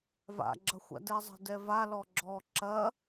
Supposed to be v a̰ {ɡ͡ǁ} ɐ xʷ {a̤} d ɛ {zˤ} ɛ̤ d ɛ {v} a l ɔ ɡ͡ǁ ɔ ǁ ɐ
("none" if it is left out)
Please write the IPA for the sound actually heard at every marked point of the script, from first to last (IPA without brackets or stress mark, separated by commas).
ɡ͡ǁ, a̰, zˤ, v